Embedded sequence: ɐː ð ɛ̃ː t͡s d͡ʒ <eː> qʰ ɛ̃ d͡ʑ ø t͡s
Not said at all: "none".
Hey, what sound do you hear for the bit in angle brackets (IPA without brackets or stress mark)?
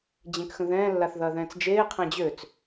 eː